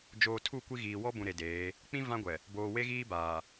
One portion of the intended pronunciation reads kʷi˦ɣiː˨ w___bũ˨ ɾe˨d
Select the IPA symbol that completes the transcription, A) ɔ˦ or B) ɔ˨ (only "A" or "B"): A